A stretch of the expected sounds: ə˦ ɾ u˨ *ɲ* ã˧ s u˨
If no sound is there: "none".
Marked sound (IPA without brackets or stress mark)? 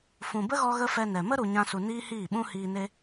ɲ